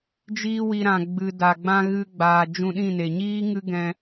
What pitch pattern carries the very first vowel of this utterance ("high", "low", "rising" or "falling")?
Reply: high